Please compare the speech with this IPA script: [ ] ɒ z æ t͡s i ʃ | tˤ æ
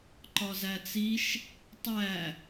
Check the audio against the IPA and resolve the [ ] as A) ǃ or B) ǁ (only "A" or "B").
A